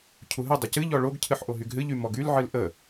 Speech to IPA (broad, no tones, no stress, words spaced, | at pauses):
cʰuɦɨ dˤɪcɨʎɔ ɭoɡcʰɨħ ʔoɦyɡɦɨʎy mɔɡylʕɨl ʔə